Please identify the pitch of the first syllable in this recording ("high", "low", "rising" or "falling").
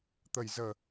low